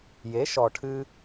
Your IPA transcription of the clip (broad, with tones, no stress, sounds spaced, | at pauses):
j e˩˥ ʃ ɔ˩ ʈʰ ɨ˧